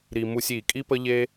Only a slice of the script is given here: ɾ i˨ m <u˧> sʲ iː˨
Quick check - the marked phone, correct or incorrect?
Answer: correct